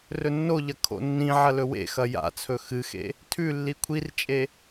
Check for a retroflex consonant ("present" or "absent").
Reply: absent